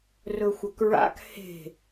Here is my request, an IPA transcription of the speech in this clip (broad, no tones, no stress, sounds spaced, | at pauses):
r ɵ xʷ ɐ k ɹ a̰ k h e̤